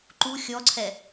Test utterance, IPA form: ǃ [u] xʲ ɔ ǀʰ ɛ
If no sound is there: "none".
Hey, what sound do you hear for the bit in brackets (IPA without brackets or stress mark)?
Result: u